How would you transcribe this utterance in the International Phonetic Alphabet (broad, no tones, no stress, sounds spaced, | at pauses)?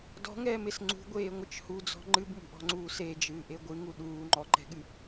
d ɔ̤ ŋ ɛː m e s ŋ͡ǀ ṳ ɡʷ eː ŋʷ ɨ t͡ʃ h u d͡z ɔ̤ ŋ͡ǃ ɨ b m ṳ ʔ ɔ̤ ŋ͡ǀ uː s e d͡ʒ ɨː ʔ e ɡʷ ɨ ŋ u ɗ uː ŋ͡ǃ ɔ ǃ ɛ̤ ɠ ɨ